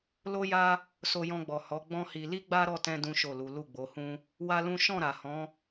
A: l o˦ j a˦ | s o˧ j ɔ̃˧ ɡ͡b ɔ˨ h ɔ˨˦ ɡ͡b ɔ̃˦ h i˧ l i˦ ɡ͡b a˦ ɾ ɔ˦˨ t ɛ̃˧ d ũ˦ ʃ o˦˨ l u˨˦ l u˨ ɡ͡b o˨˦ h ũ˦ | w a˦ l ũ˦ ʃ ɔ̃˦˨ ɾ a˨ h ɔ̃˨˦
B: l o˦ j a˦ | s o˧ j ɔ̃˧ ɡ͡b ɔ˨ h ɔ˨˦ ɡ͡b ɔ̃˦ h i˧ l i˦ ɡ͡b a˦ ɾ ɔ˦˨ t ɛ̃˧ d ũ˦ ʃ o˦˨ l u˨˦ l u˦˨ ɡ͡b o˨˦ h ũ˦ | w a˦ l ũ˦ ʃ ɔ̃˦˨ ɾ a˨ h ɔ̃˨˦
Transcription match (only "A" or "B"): B